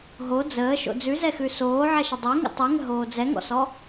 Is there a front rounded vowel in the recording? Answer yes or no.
no